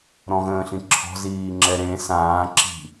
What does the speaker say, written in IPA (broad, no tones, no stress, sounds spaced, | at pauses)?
ɾ ɔ̃ ɣ ə̃ː ɬ ĩ ǁʰ ɔ̤ z iː ŋ͡ǁ ɛ ɾ ẽ s ãː ǁ i̤